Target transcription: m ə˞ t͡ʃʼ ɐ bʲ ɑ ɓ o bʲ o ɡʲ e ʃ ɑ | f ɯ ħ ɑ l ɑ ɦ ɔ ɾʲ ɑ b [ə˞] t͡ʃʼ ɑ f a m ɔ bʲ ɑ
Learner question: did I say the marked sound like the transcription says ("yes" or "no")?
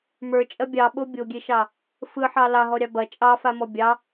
no